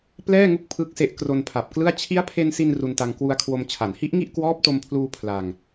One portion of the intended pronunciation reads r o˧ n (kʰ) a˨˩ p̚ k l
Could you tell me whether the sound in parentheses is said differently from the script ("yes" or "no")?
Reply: yes